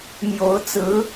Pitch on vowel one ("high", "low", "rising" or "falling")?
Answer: rising